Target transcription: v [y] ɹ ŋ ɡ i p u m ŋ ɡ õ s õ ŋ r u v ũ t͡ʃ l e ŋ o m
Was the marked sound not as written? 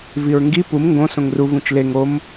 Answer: yes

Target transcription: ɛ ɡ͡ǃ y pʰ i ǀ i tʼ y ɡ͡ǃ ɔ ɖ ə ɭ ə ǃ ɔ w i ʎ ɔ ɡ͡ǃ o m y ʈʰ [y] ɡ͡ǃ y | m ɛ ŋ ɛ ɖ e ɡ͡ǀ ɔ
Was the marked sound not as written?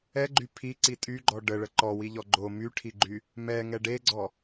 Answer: yes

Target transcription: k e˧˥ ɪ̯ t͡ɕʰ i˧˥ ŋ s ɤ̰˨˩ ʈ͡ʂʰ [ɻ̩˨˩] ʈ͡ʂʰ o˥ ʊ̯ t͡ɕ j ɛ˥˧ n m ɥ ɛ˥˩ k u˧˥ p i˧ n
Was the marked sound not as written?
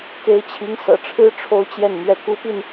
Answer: yes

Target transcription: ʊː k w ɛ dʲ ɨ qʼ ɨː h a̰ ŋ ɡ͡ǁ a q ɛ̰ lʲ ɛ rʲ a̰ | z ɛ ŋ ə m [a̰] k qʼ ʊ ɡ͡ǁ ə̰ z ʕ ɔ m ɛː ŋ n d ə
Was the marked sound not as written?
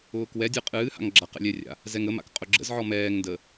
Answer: no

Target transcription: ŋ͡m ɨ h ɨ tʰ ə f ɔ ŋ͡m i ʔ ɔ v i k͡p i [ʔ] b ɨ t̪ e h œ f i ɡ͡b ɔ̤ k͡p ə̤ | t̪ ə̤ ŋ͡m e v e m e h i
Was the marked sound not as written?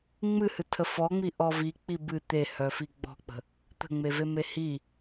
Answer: yes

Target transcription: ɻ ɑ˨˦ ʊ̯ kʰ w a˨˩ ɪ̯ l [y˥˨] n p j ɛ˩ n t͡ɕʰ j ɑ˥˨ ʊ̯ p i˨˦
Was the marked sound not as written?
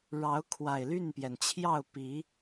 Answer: no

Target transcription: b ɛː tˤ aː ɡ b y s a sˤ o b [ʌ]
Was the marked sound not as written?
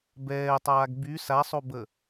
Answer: yes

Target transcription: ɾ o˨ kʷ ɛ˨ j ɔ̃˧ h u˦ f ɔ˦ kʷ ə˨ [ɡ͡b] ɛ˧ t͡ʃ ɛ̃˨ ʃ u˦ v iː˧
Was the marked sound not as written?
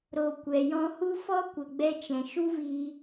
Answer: no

